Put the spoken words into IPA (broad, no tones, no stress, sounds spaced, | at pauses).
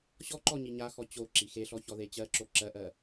ɕ ɔ ǃ ɔ ɲ i ɲ a x ɔ t͡ɕ o ǁ i x e ɬ ɔ ç ɔ ð e t͡ɕ ɜ ǁ o ǁ ɜ ʔ ɜ